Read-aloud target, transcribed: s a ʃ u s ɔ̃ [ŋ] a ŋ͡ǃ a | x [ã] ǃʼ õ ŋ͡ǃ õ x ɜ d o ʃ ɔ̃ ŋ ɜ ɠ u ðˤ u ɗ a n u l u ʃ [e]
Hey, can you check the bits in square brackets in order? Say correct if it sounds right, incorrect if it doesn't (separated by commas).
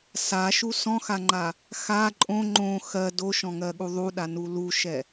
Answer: incorrect, incorrect, incorrect